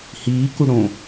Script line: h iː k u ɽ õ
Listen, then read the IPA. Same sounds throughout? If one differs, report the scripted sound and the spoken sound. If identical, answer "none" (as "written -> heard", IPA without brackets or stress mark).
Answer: none